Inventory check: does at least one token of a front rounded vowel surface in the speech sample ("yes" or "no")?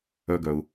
yes